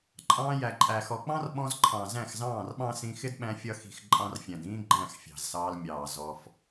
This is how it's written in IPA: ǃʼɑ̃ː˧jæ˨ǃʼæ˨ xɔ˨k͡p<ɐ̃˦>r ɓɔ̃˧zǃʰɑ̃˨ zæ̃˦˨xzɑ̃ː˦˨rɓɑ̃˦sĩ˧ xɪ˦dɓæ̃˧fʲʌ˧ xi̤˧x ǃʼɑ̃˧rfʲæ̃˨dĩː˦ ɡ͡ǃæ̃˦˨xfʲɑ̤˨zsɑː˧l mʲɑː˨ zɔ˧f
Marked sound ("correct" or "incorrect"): incorrect